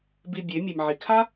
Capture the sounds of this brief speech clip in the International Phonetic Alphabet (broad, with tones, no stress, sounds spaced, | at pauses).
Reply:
b i˧ bʲ e˨˦ mʲ e˨ m ʕ i˨ kʰ a˦